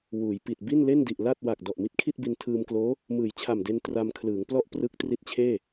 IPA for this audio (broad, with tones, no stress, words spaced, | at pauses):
wuː˩˦jpi˨˩t̚ bi˥˩nle˥˩ndi˨˩ʔ la˥˩t̚ wa˨˩k̚ dɔ˨˩ʔmi˦˥t̚kʰi˥˩t̚bi˧n tʰɯː˧mkloː˦˥ | mɯː˩˦jt͡ɕʰa˨˩mde˧n tra˧mkʰlɯː˩˦ŋplɔ˥˩ʔ prɯ˦˥k̚tri˦˥t̚t͡ɕʰeː˥˩